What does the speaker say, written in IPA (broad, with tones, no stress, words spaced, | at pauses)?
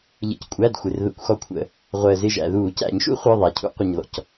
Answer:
ʎə̰˩ckʷʼæ˩˧˩d xʷɪ˩rðə̰˧˩˧kʷxɔ˧˩kʷʰə̰˧˩˧ | ʁʷəː˩zɪ˧˩ ʒæ̰˩ðuː˧˩˧ cæ̰˧˩˧ɲʃṵ˥ χʷə˞˩˧˩ðˤæ˩cʰṵ˧˩˧ qʷɪ˩ɲðɔ̰˩c